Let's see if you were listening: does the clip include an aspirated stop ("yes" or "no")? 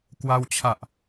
yes